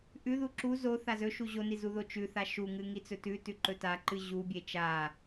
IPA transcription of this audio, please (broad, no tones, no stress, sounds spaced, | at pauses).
ʔ ʉ ð u ǁ u z o θ a z ɵ ʃ u ʑ o n i z u ð o t͡ʃ ʉ θ a ʃ u ŋ ɨ ŋ i t͡s ɵ t ʉ t ʉ ǃ ɵ t a ǃ ɨ ʑ u bʲ e t͡ʃ a